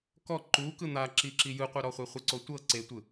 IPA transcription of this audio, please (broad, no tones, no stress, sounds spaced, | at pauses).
k ɔ ǃ u k ɯ n̪ a ǁ i ǁ i j ɯ qʷ ɛ ɾ ɔ χʷ e χʷ ɯ ǀ o tʷ ɤ ǀ e tʷ ɯ